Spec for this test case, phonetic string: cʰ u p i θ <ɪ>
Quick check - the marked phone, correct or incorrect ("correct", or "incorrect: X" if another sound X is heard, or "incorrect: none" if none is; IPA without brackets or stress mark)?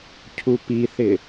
correct